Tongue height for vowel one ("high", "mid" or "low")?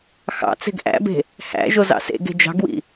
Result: low